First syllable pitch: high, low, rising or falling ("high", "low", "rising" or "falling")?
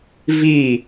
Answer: falling